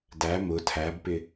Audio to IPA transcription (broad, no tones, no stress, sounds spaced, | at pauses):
d æ m ʊ tʰ æ b p ɪ